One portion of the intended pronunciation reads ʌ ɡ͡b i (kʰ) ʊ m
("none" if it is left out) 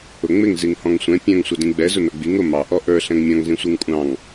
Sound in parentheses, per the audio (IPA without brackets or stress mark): ŋ